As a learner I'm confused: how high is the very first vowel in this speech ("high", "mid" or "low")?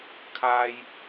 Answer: low